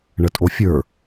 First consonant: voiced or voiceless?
voiced